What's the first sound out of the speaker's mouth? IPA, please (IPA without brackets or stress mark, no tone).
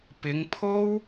p